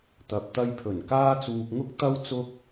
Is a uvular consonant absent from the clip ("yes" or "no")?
yes